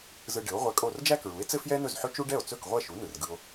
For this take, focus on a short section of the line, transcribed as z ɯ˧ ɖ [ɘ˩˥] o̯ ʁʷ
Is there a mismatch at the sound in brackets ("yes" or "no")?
no